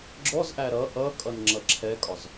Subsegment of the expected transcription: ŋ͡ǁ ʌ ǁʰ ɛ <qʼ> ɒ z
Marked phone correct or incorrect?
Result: incorrect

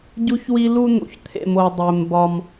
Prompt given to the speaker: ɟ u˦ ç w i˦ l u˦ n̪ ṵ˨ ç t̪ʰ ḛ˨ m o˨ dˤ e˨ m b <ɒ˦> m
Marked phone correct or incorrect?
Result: correct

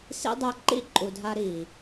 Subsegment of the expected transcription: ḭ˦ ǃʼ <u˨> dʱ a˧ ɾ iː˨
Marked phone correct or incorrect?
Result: correct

